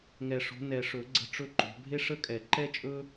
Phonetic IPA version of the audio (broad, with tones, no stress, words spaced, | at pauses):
ŋɛ˨˩ʂo̤˨˦ nɛ˨˩ʂɵ˨˩˦ ɡ͡ǀə̤˧˥˧ʈ͡ʂɵ˥ǃo̤˨˦ bʱe˥ʂə˥kʼɛ˨˩˦ ǃɛ˥t͡ʃʼɵ˥